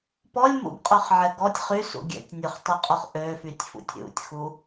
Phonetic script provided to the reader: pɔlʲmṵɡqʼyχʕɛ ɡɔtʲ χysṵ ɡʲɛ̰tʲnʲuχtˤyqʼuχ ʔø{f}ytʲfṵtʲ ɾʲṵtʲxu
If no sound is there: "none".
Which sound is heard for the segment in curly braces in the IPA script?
f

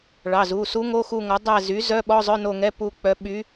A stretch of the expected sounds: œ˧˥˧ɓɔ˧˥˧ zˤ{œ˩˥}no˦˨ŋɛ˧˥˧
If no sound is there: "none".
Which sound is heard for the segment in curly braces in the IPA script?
œ˧˥˧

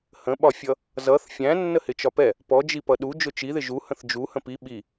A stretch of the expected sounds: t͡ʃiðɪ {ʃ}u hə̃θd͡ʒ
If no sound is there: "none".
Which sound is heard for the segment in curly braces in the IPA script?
ʒ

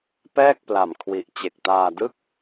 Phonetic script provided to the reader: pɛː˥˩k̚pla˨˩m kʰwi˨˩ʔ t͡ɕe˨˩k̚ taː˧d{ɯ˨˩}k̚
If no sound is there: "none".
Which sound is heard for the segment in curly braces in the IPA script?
ɯ˥˩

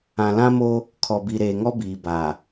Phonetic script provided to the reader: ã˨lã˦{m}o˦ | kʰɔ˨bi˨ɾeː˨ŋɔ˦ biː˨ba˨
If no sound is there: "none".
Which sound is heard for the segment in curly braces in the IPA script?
m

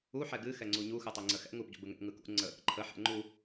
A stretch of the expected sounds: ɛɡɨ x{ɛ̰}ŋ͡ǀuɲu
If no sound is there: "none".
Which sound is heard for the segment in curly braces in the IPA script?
ɛ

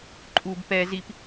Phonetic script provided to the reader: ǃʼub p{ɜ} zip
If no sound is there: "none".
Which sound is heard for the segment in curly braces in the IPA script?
ɛ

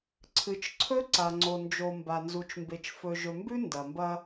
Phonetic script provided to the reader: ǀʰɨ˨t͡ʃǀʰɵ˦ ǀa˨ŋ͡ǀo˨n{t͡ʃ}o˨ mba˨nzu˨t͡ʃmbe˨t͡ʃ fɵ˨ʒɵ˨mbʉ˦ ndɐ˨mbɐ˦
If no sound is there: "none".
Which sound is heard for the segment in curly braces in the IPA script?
d͡ʒ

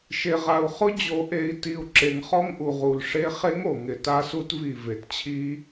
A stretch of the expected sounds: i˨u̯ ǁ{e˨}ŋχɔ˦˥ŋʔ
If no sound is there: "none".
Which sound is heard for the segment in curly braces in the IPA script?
e˨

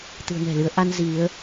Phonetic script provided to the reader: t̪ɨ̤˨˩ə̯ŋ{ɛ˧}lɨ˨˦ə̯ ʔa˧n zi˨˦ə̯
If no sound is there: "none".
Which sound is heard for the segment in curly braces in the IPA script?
ɛ̤˨˩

